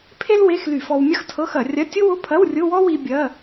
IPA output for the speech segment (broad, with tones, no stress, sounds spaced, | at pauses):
pʰ e˥ l w e˧˥˧ x l y˧˩˧ f ɔ˧ w mʲ ɐ˥ x tʰ ɤ˧˥˧ x ɐ˧˩˧ rʲ ɐ˧˥˧ tʲ ʊ˥ w ʊ˧˥˧ pʰ ɐ˧˥˧ w rʲ ʊ˧˥˧ w ɔ˥ w i˧ bʲ ɐ˧˥˧